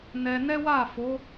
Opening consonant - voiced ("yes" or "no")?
yes